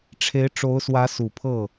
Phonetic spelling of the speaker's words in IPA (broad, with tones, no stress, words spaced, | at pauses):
ʈ͡ʂʰe˧˥ɪ̯ ʈ͡ʂo˧˥ʊ̯swä˧˥ su˨˩pʰɤ˥˩